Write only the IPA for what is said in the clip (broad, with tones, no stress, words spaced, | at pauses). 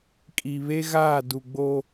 kʼi˨βe˦ɣaː˦˨ du˨ɡ͡bo˦